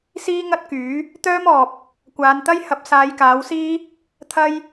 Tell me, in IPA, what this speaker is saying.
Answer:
siː˥ŋɐ˥t̚kyː˨˥ | t̪œː˥mɔː˨p̚ | kʷaː˨˧nt̪ɐ˥j hɐ˨˥p̚saː˨˧jkaː˨˥wsiː˥ | t̪ʰɐ˥j

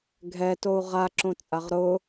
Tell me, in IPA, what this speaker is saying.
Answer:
ɡʱɛtou̯ ʁaǁõt͡sʼaʁ ɾʊ

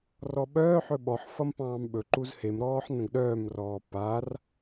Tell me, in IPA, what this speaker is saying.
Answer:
rɔɓœːħɵ ɓɔħfʌm pɑ̃ːmɓɵǃuz hemɾɔːħ nə̃ɡɗœːmrɔː par

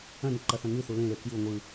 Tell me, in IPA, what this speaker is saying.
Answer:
ɐ̃nɪ ǃɐθɐ̃ŋʉθu lẽle kju ŋʷɯ

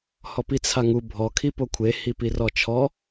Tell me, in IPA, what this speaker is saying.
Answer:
hɔpit͡sʰaŋu bʱɔ kʰipokʷʰe hipirɔt͡ʃʰɔ

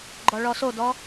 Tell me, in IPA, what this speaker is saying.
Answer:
ɡ͡ǃɔɭɔsodɔ

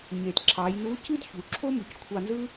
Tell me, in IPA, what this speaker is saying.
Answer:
ɲe˩tǁʰɑ˩˧jnu˧˥ cɯ˥dçu˩˧ǁʰo˥ mu˩ckʷʰɑ˧ nzɯ˥

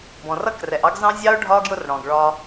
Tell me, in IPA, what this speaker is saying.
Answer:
bɔ̃˨rʌ˦krɛ˨ʔɑ˦ɡ zɑ̃˦zʲɑ˦ʊ̯ɖʱɒ˦ ɡjʊ˦rɽɔ̃˨ɡɭɒ˦

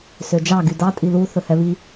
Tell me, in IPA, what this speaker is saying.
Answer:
sød͡ʒɑ ɡydɑ tʼilu θɵhɛβi

